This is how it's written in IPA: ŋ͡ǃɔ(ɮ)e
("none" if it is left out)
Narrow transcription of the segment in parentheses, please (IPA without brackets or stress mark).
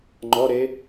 ɾ